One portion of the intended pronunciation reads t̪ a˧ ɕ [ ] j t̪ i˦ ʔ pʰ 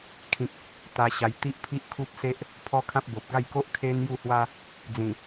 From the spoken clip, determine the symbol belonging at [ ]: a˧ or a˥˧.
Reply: a˧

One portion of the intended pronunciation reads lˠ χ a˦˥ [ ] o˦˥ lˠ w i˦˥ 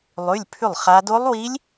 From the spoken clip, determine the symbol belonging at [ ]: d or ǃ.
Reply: d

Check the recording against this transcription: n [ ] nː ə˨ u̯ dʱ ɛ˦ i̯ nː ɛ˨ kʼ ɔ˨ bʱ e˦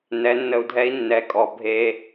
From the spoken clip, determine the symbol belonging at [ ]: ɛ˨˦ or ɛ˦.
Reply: ɛ˨˦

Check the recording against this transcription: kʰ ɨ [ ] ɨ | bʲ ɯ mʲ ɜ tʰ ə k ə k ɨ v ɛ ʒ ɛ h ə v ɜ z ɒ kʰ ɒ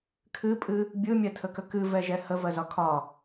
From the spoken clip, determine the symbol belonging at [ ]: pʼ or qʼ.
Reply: pʼ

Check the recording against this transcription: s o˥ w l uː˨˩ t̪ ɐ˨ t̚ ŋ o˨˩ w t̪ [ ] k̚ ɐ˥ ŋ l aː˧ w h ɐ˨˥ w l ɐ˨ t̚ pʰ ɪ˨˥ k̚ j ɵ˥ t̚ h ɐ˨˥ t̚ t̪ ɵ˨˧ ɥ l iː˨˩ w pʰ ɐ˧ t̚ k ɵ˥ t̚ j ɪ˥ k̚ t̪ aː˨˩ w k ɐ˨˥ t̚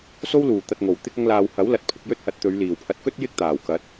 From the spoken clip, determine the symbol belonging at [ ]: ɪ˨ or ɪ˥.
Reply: ɪ˥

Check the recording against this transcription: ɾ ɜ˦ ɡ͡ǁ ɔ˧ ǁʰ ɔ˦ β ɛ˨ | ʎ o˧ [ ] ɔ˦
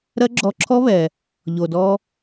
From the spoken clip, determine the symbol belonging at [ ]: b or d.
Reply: d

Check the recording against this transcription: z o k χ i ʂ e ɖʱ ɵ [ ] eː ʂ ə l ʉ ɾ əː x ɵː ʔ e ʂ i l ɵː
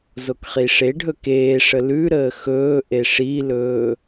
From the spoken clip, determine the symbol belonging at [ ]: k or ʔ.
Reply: k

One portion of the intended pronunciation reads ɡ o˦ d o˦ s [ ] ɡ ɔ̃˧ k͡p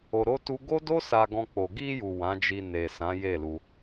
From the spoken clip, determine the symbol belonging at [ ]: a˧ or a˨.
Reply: a˧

